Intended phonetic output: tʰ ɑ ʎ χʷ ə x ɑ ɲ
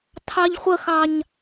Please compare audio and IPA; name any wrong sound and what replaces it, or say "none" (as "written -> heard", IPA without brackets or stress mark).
none